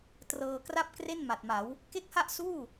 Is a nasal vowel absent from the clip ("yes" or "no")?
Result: yes